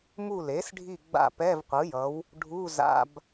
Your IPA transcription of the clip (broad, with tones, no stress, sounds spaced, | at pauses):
m u˦˨ l e˩˥ s ɖʱ i˦˨ ɡ͡b a̰˦˨ p ɛ˧˥˧ v qʷ ɯ˩˥ j ʌ˩˥ w | ɖʱ u˧˥˧ z a̰˧˥˧ b